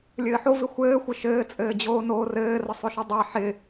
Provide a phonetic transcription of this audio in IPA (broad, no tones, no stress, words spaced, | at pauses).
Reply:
lʲɘːħo vɪxʷɘːxʷɪ ʃɘːt͡sʼɘːd͡ʑoː noːrɘːrə sˤɵʃɪ dˤa ħɪ